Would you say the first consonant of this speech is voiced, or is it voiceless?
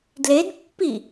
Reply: voiced